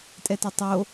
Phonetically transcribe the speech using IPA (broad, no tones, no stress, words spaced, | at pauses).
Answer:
tʼɛtetˤo